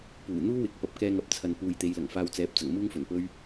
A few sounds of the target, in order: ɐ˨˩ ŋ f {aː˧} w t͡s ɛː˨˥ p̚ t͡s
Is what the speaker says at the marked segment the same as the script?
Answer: yes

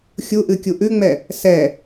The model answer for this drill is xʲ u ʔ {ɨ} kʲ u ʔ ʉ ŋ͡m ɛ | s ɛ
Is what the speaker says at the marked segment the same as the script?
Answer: yes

